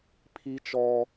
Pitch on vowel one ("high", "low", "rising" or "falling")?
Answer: high